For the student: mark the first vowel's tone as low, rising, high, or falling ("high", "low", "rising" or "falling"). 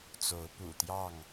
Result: rising